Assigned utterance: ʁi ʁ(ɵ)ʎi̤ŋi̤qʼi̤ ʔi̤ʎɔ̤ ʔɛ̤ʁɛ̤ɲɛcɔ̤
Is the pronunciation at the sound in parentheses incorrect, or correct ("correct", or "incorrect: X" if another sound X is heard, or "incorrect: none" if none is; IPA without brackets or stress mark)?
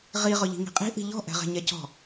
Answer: correct